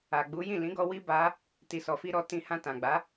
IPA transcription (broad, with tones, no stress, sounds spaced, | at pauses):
a˨ ɡ͡b u˨˦ j ĩ˦˨ l ĩ˨˦ ɡ ɔ˧ w i˦ b a˧ | t i˨ s ɔ˨ f i˧ ɾ ɔ˧ t ĩ˦ h ã˧ t ã˨ ɡ͡b a˨˦